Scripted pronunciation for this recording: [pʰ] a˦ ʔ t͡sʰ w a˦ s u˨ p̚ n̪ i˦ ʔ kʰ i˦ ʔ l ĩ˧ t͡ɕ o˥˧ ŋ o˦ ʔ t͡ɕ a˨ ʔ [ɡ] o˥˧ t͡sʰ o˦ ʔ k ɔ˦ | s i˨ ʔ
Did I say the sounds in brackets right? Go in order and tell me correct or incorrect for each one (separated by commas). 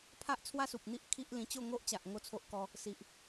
correct, incorrect